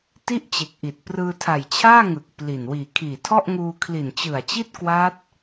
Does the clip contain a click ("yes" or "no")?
no